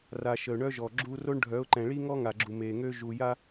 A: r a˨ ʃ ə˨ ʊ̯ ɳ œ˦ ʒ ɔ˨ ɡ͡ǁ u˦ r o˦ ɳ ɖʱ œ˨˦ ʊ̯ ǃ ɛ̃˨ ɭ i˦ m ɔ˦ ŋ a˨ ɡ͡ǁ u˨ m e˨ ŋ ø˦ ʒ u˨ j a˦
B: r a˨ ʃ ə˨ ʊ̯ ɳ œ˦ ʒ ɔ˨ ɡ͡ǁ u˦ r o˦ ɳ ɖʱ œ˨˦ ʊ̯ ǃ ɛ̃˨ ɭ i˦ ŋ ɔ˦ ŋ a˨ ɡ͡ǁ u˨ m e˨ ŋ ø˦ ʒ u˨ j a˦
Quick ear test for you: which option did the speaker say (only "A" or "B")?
B